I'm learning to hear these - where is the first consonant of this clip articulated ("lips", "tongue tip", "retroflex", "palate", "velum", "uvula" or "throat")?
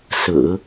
tongue tip